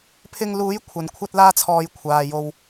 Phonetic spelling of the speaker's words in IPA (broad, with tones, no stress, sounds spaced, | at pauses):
pʰ ɪ˧ ŋ l uː˨˥ j kʷʰ ɐ˨˧ n kʷʰ ɐ˥ t̚ l aː˥ t͡sʰ ɔː˧ j kʷʰ aː˨ j o˧ w